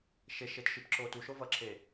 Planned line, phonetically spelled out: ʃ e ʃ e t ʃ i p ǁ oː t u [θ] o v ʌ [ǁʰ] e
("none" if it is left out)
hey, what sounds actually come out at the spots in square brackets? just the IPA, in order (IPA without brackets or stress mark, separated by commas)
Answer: ʃ, ǁʰ